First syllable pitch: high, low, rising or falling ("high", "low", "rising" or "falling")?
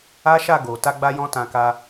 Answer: high